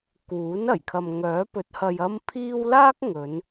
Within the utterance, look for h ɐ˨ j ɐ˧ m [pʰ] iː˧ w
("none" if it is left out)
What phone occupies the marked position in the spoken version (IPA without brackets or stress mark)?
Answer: pʰ